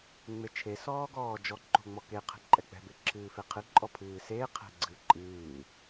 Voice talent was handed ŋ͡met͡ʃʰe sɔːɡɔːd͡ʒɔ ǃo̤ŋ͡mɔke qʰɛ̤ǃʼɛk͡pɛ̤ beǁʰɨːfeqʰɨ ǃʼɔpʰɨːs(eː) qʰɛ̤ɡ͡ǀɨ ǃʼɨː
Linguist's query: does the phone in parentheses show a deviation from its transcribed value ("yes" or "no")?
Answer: no